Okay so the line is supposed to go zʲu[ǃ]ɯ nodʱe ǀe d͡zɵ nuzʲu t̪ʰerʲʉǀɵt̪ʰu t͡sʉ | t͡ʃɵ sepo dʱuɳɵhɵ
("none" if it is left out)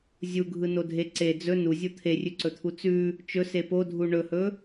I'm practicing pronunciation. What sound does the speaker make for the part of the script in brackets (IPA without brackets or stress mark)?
ɡʱ